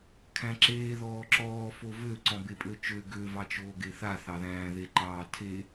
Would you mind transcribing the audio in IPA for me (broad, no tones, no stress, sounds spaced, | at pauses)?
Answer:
kʰ æ̃ ǁ eː ð ɔː ǁ ɔː f o v ø ǀ ɔ̃ b e pʼ ø t͡ʃ ø ɡ ø v ɑ t͡ʃ oː ɡ e θ a θ ɑ ð æ̃ː ð e ǃ ɑː tʰ e